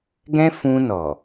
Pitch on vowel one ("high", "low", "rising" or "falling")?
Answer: high